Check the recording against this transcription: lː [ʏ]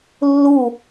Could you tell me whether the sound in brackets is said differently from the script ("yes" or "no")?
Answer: yes